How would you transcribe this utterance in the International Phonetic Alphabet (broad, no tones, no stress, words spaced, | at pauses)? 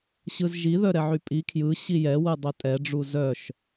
ɕɯzʒi ðœɾɛʕypʼi kʰjɯ ɕijɛ wɯdˤœtʼɛ ɖ͡ʐuzœʃ